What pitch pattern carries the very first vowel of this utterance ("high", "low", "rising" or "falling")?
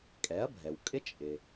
rising